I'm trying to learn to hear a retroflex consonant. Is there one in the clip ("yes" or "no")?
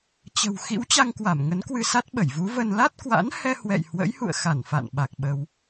no